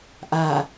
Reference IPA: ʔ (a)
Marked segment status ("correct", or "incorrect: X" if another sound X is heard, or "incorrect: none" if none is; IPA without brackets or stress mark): correct